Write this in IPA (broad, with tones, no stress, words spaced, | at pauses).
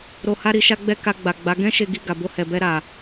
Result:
ɾo˧ha˦ɾi˧ ʃa˦ɡ͡bɛ˦ ka˧ ɡ͡ba˨ ɡ͡ba˨˦ ɡɛ̃˦ ʃe˧ɡi˧ɡa˨ bo˧hɛ˨bɛ˧ɾa˨